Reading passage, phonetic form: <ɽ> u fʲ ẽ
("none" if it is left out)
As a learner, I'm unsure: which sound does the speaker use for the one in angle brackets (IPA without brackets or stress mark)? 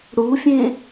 ɽ